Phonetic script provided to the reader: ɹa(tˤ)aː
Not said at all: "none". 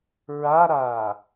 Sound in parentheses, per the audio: ɾ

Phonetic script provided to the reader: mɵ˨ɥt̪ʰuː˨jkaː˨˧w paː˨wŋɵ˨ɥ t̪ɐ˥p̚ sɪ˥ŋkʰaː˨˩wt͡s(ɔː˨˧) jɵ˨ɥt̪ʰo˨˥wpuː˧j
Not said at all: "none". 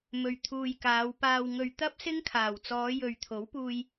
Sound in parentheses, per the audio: ɔː˨˧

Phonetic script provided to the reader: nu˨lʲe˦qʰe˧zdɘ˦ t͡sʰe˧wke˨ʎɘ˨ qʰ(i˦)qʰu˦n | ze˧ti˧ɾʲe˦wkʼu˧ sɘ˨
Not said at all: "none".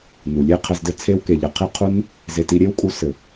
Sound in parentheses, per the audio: i˦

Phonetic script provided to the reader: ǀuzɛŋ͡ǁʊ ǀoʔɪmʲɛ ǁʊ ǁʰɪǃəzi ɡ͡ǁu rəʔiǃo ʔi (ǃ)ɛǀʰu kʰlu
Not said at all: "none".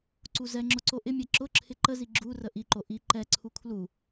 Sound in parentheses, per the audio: ǃ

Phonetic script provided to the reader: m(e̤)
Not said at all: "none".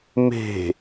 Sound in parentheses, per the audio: e̤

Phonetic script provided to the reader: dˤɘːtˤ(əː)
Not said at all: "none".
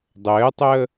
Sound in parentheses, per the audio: əː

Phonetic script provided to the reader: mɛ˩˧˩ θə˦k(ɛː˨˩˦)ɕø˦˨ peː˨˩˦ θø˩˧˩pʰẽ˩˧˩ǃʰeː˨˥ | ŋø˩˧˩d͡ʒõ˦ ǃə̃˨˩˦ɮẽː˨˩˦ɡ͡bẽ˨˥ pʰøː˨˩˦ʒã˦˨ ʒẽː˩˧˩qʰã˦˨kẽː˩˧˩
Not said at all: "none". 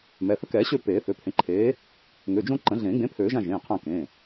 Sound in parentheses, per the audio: ɛː˨˩˦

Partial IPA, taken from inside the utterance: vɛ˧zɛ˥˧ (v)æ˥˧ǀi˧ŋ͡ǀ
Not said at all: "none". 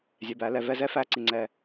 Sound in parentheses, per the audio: f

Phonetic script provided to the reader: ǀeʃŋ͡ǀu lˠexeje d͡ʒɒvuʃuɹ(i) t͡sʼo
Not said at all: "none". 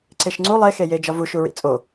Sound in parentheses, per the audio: ḭ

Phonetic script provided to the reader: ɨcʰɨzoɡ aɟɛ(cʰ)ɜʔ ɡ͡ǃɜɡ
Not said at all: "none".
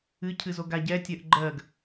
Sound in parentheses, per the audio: tʲ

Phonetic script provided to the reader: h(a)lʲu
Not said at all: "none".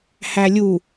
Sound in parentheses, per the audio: æ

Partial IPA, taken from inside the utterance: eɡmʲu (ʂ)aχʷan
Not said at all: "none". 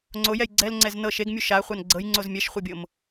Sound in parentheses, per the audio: ʃ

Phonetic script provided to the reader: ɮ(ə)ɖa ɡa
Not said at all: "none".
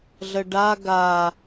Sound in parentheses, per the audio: ə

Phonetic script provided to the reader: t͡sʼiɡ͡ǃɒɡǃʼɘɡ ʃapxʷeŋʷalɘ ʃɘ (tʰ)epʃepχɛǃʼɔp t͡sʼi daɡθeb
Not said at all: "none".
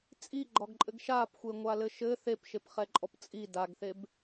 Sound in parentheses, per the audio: θ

